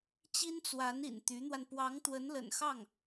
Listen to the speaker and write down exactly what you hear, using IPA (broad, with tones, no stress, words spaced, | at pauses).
t͡ɕi˥nt͡swa˧˥nḭ˨˩n t̪y˧˥n̪wa˧n pwɑ˧˥ŋt̪wə˧˥nlə̰˨˩nxɑ˥˩ŋ